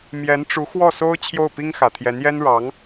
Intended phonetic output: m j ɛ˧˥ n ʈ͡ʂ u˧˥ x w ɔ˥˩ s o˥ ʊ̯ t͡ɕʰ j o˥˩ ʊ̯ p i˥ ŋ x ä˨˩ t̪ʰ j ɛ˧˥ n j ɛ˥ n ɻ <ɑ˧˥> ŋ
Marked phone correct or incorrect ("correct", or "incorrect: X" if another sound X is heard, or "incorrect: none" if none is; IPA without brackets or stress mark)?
correct